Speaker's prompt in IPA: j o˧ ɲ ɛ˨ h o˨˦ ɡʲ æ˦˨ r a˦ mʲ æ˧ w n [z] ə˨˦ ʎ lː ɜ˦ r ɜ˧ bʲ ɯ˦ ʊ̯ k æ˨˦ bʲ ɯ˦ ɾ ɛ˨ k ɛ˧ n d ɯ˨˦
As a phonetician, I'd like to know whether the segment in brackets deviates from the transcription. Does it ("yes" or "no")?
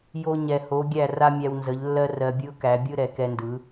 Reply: no